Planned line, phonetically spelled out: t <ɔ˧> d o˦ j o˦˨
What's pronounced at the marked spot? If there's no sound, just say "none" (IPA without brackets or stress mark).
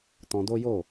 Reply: ɔ̃˧